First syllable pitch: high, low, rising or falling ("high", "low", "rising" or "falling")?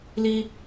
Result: high